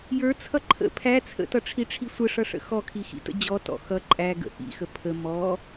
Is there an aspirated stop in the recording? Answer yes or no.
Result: yes